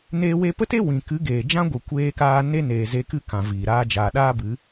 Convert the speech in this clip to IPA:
n eː˧ w e˧ p ə˦ t e˦ w ĩ˨ k ɨ˨˦ ɡ eː˨ d͡ʒ ã˦ ɡʷ ɨ˨ kʷ eː˧ k aː˧ n e˦ n eː˨ z e˧ k ɨ˦ k ã˨ v iː˨ ɾ aː˦ d͡ʒ aː˨ ɗ aː˦ b ɨ˨˦

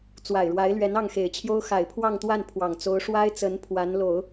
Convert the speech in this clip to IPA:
t͡s w a˨˩ ɪ̯ ɻ w a˧˥ ɪ̯ l ɥ ɛ˧˥ n ɑ˥˩ ŋ x e˨˩ ɪ̯ t͡ɕʰ j o˥ ʊ̯ x a˨˩ ɪ̯ pʰ w ɑ˥˧ ŋ t̪ w a˥˩ n pʰ w ɑ˨˩ ŋ t͡s o˧˥ ʊ̯ ʂ w a˥ ɪ̯ t͡s ə˧˥ n pʰ w a˧˥ n l o˨˩˦ ʊ̯

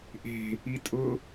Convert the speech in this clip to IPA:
ʔ e̤ | i tʼ ʊ

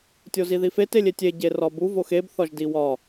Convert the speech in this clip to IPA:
tʲ o z i ð i f e t e lʲ e tʲ e ɟ e r ɒ b u v o x e b θ ɒ ʒ d i w ɒ

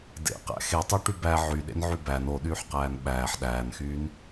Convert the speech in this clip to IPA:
d ḛ q æ̰ x e tˤ u ʈ y b æ ʕ y ɗ ḛ n ʕ y b æ n o ɗ yː ħ q æː n ɓ æː ħ ɗ æː n x yː n

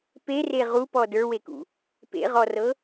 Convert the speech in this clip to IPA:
p e r e ʁ u p ɔ d ə˞ w e k ṵ | p ḛ ʁ ɔ r ɤ

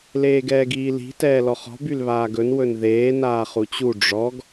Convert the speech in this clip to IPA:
l eː ɡ ɛː ɡ iː l i̤ t ɛː l ɔ χ ɔ̤ b y l β aː ɡ ɵ n w ɵ n ð eː n aː χ u t͡ɕ u ɖ͡ʐ ɔ ɡ

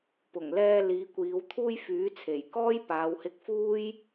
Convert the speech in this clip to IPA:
p ʊ˨˩ ŋ l ɛː˧ l iː˨˧ kʷ iː˨˧ w t̪ʰ uː˧ j f yː˨˥ t͡sʰ e˨˩ j k ɔː˥ j p aː˨˧ w h ɪ˧ k̚ f uː˥ j

